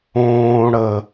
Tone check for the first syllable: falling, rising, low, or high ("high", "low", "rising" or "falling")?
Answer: low